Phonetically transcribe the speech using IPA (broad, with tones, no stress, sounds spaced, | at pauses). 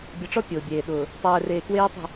bʲ ʌ˨ ʈ͡ʂ ɔ˦ pʲ ʊː˨ bʲ eː˨ ɗ ʊː˨ | tˤ ɛː˨ r eː˨ k w eː˦ tˤ i̤˦˨